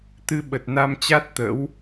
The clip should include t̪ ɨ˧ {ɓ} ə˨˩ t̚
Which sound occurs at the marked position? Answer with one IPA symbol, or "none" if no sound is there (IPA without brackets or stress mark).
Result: ɓ